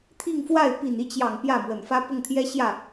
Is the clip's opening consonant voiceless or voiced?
voiceless